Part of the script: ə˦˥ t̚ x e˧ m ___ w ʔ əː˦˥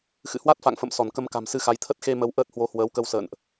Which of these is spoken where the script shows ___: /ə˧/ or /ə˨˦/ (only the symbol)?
ə˨˦